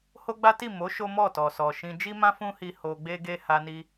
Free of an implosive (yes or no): yes